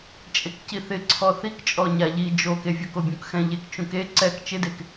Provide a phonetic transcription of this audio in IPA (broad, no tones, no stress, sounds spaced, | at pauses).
t͡ʃʼ e k c i θ ɪ ǀʰ ɔ θ i k t͡ʃʼ ɔ ɲ a ʎ i d͡ʒ o k e vʲ o k o bʲ ũ k x ɛ̃ ʎ e k t͡ʃ ũ k e ǀ ɛ k t͡ʃ ɪ d e k